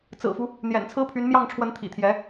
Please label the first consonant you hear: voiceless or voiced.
voiceless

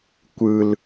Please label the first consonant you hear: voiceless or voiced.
voiceless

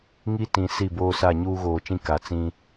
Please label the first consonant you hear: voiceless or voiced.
voiced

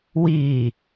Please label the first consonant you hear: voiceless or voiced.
voiced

